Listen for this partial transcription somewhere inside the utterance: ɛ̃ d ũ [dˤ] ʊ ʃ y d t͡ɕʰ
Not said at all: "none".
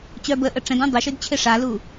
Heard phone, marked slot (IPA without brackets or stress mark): dˤ